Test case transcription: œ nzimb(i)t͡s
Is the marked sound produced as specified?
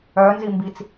yes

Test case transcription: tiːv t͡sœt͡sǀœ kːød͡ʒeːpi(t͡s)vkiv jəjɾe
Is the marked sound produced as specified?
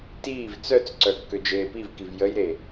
no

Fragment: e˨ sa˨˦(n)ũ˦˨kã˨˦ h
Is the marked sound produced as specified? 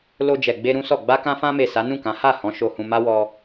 yes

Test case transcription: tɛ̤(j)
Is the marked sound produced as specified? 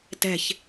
no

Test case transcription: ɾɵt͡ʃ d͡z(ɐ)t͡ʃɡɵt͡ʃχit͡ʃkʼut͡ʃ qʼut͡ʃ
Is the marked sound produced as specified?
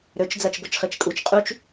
yes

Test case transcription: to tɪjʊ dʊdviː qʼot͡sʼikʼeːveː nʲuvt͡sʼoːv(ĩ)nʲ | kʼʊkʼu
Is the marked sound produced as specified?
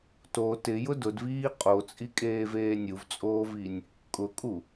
no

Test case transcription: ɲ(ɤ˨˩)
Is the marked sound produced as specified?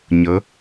no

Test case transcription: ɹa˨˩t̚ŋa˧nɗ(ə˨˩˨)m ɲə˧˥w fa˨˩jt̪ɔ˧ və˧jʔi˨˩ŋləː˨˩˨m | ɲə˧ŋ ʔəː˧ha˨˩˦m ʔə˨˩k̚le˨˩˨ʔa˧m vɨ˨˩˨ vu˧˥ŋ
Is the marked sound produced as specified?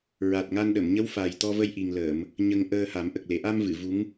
yes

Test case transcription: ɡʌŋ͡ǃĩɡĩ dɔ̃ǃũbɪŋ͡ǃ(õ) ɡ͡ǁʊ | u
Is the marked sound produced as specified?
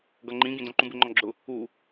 no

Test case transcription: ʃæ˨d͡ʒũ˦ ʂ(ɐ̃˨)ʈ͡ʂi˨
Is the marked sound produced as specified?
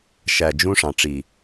no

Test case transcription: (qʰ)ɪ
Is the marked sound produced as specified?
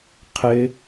yes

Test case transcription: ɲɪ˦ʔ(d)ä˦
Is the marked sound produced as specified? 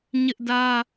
yes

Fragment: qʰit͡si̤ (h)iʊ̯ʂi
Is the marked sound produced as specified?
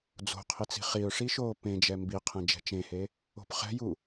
no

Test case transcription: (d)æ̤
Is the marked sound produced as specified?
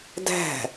yes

